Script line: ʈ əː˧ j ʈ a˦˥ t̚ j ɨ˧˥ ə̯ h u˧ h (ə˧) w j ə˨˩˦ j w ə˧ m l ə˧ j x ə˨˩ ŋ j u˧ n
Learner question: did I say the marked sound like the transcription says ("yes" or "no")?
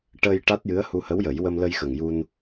no